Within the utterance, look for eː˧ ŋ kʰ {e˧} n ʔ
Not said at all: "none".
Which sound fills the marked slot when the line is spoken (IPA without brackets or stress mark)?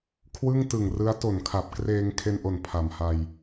e˧